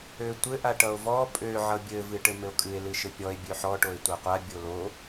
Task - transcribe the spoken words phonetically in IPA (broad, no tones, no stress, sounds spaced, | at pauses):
ø tʷ ɘ ʔ a ʈ ʌ o̯ v ɔ pʼ ø ʕ ʌ bʲ ɘ v ɨ ʈ ɘ m ɘ o̯ kʼ ɨ e̯ l ɨ ʃ ɘ pʲ ɔ e̯ bʲ ø ħ ɔ ʈ o e̯ tʷ a qʷ a bʲ o l o